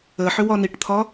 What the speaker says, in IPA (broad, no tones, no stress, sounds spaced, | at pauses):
ə ħ ʏ w ɒ n i ʈ t̪ʰ ɒ